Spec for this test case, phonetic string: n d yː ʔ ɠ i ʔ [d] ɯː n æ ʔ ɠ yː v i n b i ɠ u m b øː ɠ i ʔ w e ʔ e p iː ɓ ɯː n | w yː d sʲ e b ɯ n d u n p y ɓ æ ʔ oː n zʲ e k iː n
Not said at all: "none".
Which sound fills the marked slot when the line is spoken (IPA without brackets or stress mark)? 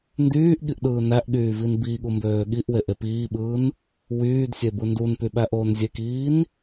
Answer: ɗ